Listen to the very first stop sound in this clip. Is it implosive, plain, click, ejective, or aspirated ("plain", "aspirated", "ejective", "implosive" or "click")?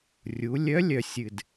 plain